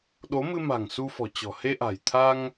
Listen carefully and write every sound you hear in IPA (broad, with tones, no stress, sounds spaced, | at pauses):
ɗ o˨˦ m ɨ˧ m a̤˨˩ ŋ s u˧ f ɔ̤˨˩ t͡ɕ ɔ̤˨˩ h e˧ ʔ a̤˨˩ j t̪ʰ a˧ ŋ